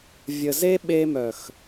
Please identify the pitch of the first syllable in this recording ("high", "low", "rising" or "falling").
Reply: low